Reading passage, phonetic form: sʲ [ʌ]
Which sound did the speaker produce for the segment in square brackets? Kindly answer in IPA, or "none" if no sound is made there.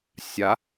a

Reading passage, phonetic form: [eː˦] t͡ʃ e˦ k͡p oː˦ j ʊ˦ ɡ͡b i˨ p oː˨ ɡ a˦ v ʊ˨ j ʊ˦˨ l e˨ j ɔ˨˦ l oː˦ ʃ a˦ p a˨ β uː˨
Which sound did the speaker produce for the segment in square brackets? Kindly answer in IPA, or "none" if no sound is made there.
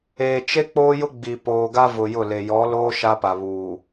eː˨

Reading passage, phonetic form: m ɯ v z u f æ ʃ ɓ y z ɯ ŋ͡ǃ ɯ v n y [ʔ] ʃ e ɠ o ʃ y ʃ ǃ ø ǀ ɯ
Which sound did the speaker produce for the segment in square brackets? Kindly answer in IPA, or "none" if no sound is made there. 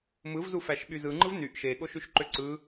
ʔ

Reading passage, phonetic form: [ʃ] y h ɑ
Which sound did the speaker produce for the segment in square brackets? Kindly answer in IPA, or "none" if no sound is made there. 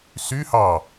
s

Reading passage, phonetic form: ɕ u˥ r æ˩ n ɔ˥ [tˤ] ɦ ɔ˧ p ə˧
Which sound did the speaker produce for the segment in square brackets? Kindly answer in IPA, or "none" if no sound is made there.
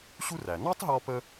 tˤ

